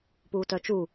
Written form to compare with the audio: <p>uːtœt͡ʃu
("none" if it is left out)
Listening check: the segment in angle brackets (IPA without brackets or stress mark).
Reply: p